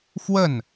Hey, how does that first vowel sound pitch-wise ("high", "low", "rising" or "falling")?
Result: falling